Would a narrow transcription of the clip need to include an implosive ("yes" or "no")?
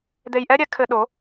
yes